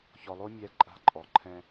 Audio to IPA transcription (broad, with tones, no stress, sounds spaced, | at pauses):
ç ɔ˨ lˠ o˦ mʲ ɛ˨˦ ǃʼ a̤˧ ǃʼ ɔ˨ ǃʰ ɛ̃˧